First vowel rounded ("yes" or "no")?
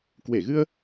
no